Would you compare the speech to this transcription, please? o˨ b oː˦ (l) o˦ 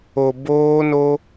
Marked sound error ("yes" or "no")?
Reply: yes